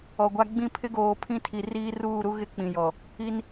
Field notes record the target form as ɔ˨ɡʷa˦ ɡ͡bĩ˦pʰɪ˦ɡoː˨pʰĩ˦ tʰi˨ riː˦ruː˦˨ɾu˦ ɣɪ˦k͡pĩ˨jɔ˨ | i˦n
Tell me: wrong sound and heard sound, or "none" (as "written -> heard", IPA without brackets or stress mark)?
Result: none